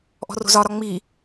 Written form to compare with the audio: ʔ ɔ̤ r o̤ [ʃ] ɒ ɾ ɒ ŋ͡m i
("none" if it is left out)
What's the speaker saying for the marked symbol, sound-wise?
z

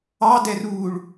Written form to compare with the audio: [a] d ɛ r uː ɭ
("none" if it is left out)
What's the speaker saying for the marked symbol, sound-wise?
ɑ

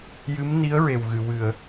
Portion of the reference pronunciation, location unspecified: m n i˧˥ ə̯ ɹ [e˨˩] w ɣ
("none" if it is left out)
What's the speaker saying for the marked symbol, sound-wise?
e˨˩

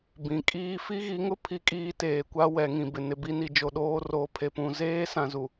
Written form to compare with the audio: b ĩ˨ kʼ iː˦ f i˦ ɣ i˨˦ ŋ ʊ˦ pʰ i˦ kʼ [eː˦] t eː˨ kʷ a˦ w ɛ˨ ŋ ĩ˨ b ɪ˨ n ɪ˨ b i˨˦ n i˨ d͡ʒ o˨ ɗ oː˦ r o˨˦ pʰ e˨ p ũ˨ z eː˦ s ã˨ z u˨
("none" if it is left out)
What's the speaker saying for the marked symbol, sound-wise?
iː˦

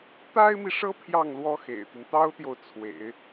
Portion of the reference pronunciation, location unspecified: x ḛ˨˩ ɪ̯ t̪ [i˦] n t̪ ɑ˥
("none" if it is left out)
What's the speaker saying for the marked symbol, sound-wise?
i˦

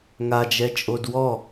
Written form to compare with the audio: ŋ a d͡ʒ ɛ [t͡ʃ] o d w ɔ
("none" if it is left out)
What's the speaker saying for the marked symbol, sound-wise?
t͡ʃʼ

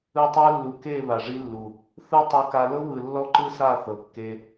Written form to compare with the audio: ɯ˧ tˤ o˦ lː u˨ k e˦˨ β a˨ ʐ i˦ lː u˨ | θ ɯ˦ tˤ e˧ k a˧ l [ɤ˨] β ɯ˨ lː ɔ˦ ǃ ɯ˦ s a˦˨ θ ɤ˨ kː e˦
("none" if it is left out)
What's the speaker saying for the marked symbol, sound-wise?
ɤ˦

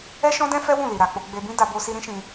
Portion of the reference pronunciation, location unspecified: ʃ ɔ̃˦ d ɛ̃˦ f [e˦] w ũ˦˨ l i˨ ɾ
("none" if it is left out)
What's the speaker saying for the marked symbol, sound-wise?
ɛ˦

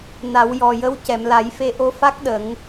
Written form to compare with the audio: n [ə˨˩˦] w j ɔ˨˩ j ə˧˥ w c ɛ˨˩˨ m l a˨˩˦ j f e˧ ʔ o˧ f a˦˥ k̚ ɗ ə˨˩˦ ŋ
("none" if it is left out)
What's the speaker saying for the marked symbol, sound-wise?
a˨˩˦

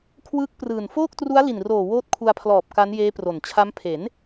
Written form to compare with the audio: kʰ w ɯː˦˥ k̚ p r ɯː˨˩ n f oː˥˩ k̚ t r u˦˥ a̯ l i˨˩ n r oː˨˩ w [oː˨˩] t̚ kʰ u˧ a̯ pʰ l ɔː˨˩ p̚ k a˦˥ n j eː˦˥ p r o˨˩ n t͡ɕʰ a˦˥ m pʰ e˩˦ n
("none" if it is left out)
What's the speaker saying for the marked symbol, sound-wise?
oː˦˥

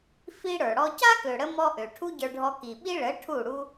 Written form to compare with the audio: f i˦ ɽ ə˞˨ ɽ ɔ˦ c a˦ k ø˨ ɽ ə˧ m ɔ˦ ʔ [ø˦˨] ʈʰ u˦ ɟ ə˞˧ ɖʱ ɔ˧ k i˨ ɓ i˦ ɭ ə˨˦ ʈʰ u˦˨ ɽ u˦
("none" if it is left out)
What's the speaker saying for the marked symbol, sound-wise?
ø˨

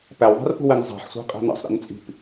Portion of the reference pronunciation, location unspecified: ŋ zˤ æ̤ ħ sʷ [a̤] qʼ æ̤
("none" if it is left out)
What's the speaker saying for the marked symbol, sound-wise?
æ̤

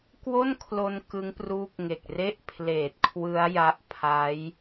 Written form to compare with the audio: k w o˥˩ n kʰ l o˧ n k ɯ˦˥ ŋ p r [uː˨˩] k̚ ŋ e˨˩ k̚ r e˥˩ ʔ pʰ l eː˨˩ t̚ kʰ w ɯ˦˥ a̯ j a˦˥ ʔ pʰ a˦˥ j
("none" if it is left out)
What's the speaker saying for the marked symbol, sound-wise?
uː˦˥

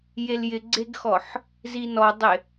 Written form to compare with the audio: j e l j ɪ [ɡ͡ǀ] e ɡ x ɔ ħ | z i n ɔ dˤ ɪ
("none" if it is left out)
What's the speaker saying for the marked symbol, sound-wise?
ɡ͡ǀ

